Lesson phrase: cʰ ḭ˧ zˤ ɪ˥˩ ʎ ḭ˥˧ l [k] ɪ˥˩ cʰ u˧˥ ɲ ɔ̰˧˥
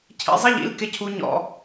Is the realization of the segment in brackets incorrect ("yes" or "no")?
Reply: no